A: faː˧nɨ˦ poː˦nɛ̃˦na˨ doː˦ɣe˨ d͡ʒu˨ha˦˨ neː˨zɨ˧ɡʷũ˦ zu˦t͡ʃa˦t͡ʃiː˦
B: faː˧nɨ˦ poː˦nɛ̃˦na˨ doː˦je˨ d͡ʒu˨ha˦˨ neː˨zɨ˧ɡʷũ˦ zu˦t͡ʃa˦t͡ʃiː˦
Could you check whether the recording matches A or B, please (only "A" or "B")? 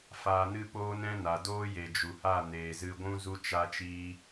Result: B